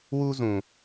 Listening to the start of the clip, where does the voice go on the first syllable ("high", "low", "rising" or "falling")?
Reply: high